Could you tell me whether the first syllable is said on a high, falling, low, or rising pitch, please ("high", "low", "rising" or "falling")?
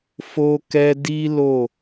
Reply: high